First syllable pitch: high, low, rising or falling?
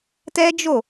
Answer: high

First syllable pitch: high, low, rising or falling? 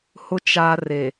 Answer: low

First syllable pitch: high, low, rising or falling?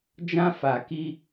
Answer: high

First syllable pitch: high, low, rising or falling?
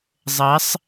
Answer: rising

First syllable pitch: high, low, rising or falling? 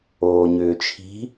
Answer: low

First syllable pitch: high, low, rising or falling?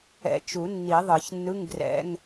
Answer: rising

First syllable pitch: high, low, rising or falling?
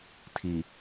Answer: low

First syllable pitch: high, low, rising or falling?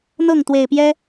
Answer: falling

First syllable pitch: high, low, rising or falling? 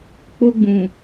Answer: high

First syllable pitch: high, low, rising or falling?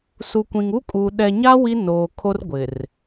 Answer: low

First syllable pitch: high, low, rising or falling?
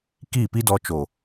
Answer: falling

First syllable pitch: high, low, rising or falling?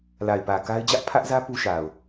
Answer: low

